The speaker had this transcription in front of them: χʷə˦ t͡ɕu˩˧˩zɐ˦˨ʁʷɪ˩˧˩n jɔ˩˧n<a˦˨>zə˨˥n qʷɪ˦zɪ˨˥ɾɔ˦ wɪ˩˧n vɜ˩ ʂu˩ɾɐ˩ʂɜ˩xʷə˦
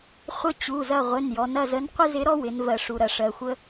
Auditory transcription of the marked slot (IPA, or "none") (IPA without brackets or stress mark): ɐ˦˨